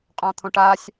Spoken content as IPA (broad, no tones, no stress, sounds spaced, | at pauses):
qʼ ɔ̃ t̪ʰ õ ʈ a sʲ